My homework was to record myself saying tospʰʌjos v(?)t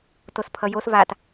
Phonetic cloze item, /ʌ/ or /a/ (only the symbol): a